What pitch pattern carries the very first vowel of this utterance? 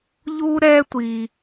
high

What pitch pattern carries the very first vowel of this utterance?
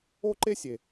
high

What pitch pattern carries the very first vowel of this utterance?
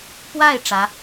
falling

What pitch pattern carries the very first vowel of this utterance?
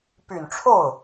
low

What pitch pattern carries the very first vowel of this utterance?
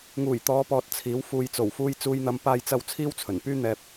low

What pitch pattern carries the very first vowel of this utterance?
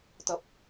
low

